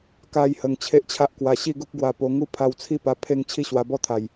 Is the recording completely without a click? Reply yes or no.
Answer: yes